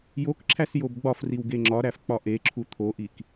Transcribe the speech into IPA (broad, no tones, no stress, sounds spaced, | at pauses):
j o k ǁʰ æ s j o b ɡ͡b ɒ f r i w ɡ e ŋ͡ǁ ɒ ɾ æ f k͡p ɒ ʔ e ǁʰ u t̪ʰ o ʔ i k